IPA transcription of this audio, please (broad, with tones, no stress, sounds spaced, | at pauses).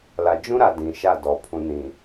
l a˨ d͡ʒ ũ˦ ɾ a˨ d ĩ˨ ʃ a˦˨ d ɔ˨ pʰ ũ˨ n ĩ˨